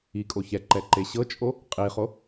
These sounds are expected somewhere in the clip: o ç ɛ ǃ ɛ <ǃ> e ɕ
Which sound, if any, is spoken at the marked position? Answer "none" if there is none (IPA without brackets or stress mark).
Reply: ǃ